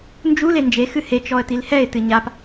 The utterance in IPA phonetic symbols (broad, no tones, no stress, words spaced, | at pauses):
nd͡ʒu lend͡ʒe xɨhe t͡ʃɔə̯tilhɛɪ̯ tɨɲap